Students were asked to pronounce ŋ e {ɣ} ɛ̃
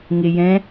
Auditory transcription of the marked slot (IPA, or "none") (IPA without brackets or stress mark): j